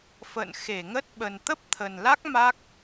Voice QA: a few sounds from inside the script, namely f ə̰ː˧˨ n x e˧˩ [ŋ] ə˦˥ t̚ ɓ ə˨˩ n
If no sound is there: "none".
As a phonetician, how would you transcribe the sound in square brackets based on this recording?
ŋ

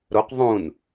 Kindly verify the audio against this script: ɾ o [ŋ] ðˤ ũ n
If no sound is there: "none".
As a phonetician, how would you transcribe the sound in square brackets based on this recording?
q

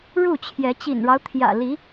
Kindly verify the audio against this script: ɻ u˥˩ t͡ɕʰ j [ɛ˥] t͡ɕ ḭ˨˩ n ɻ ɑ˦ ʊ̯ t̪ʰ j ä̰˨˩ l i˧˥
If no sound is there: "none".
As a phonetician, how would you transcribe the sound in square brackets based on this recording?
ɛ˧˥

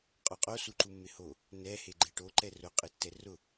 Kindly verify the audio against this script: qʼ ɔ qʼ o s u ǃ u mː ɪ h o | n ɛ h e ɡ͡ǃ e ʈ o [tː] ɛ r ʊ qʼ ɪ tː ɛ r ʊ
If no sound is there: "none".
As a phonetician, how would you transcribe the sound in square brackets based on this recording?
ǃ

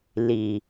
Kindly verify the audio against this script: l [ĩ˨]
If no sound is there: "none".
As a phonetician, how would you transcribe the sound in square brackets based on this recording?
i˨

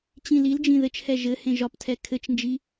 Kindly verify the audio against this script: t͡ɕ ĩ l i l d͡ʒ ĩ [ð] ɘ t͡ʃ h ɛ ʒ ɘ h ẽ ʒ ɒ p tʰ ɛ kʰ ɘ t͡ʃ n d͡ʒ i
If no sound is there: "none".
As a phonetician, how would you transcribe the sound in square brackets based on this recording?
ð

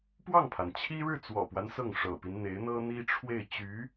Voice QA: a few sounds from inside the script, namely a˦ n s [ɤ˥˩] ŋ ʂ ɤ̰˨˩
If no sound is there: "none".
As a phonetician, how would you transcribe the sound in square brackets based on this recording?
ɤ˥˩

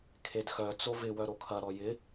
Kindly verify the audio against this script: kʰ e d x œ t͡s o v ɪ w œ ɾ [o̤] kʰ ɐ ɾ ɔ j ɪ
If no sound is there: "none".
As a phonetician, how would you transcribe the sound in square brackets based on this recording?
o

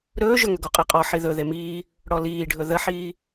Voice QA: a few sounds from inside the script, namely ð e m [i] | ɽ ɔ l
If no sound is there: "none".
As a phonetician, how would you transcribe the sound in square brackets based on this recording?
iː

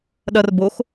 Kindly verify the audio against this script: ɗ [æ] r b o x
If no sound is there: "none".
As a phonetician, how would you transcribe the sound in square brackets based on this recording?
ɐ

